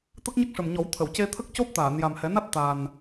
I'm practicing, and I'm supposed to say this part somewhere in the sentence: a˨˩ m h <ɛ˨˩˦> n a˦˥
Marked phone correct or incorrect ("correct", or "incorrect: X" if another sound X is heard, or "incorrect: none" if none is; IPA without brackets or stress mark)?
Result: correct